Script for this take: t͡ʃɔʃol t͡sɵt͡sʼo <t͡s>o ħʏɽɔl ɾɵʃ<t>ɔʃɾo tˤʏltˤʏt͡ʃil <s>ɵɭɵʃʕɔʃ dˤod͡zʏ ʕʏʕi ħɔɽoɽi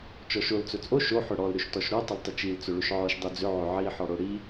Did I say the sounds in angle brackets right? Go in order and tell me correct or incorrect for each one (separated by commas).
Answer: incorrect, correct, incorrect